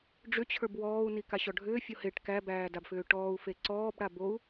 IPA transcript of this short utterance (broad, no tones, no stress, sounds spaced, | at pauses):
ɖ͡ʐ ʏ t͡ɕʰ ə˞ b w ɔː u̯ n i k a ɕ ɔ ɖʱ ʏː fʲ o h e ʈ k æ b æː d a b f ʏː ʈ ɔː u̯ f e ǀ ɔː b ɽ a b o u̯